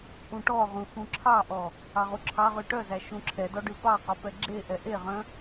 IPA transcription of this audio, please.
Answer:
ʔ ũ ʈ ɔ ʁ ũ x ũ ǁʰ ɑ ʔ ɔ | ɑ ʁ u ǁʰ ɑ ʁ y ʈ œ z æ ʃ ũ ǁʰ ɛ d ɔ ɖ ʉ p ɑ q ɔ p ɛ ɡ͡ǁ e ʔ ɛ ʔ e ʁ œ̃

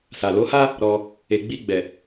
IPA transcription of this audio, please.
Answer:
s a˨ l o˨˦ h a˦ | ɾ ɔ˧ | e˨ ɡ͡b i˧ ɡ͡b ɛ˨

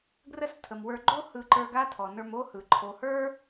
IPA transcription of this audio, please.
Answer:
ɡ r ə˦ s tʰ ə˨ m w ə˞˧ ɡ͡ǃ o˦ h ɯ˧ ǃ ə˞˧ ɡ a˦ tʰ ɔ˨ n ə˞˧ m o˦ h ɯ˨ ǃʰ o˨ h ə˞˦

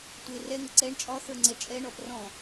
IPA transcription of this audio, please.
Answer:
tʷ e r ɛ ŋ ə ǀ ɛ ɳ t͡ʃʼ ɒ θ ə˞ ŋ͡ǀ ɛ t͡ʃʼ ɛ ɳ ɔ p r ɔ̃

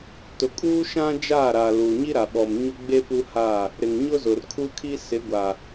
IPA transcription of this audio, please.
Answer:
t ʊ˨ kʼ uː˦ ʃ ã˦ d͡ʒ a˦˨ ɾ a˨ l uː˨ ɲ i˦ ɾ a˨ ɓ ɔ˨ m ɲ ʊ˦ ɡ͡b e˦ p u˦ h aː˦˨ | ɾ ɪ˨ ŋ ɲ ʊ˦ z ʊ˨ r kʰ u˦ kʰ i˦ s ɪ˨˦ ɡʷ a˨

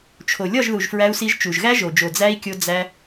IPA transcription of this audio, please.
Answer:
t͡ʃʰ o˨ lʲ ɒ˦˨ ʒ ð u˨ ʒ f ɹ æ˧ u̯ s i˧ ʒ t͡ʃ u˨ ʒ ɣ æ˦ ʒ o˨ d͡ʒ o˨ d͡z æ˦ i̯ kʲ o˧ d͡z æ˧

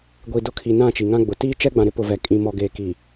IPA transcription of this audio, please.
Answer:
ɡʷ i˨ d ʊ˦ kʰ i˨ n ã˦˨ t͡ʃ i˨ ŋ ã˦ ɡ͡b ʊ˨ t iː˦ t͡ʃ ɛ˦ ɡ͡b ã˨ ɾ ɪ˦ p ʊ˨ v ɛ˨ kʼ ĩ˨ m ɔ˨ ɡ eː˨ k i˨

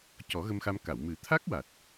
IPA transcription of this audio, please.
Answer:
c ɔ˨˩˦ ɣ ə˧ m x a˧ m k a˨˩˨ w m ɨ˨˩˦ t̪ʰ a˦˥ k̚ w a˨˩ t̚

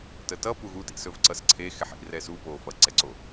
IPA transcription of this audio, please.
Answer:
t ə t ʌ p u ɣ u t ḭ s ɵ v ǀ ʌ s ǀʰ e x ɛ ħ ḭ r ɛ s u p o f ʌ ǀ ɛ ǀ o

